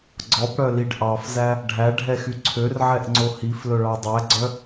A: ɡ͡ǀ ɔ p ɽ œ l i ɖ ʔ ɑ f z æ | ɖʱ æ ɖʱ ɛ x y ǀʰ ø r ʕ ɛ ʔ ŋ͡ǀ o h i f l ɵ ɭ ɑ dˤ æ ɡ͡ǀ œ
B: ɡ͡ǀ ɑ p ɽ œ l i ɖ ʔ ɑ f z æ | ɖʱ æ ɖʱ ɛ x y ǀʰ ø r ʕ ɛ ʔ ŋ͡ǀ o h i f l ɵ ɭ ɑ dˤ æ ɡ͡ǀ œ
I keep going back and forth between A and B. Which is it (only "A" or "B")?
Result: A